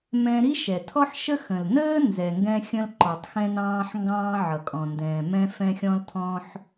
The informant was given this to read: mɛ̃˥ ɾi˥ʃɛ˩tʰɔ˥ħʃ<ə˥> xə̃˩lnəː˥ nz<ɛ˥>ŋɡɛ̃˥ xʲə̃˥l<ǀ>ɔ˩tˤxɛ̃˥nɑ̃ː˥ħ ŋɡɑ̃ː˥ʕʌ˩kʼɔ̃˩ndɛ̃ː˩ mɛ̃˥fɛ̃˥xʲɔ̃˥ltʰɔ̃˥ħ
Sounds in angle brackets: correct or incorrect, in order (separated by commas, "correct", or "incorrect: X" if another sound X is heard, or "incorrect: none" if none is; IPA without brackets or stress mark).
correct, incorrect: ɛ˩, incorrect: ǃ